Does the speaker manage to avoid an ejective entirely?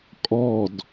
no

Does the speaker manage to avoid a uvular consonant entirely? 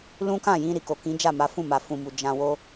yes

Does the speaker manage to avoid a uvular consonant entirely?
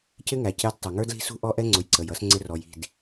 yes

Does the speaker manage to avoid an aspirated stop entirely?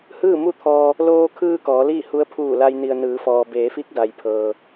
no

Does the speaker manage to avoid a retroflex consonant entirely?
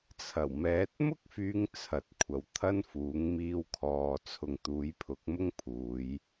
yes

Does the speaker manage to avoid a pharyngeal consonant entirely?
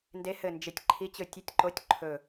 yes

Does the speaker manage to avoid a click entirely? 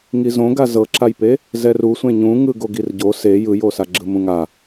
no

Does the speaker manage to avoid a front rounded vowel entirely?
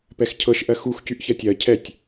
no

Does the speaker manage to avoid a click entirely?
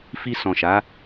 yes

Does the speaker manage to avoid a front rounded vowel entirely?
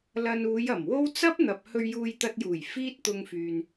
no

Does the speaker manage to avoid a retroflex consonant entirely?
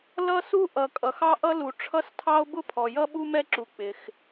no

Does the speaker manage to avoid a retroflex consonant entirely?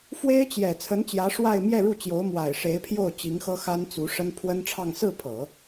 no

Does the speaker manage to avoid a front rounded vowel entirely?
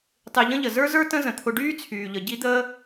no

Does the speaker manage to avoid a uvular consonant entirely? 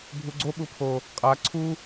no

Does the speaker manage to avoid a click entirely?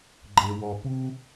no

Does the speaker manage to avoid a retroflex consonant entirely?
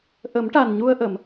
no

